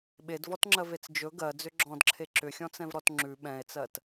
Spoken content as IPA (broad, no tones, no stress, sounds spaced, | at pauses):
ɓ e d v ɔ t ŋ͡ǁ ɜ v e t͡s d͡ʒ ɵ ɡ ɜ d͡z ʏ ɡ͡ǁ ɔ̃ d ǁʰ e ǁ ʏ xʲ ɔ̃ t͡s ɛ̃ v ɾ ɔ t ŋ͡ǁ ʉ ɓ ɛ̃ e̯ t͡s ɜ t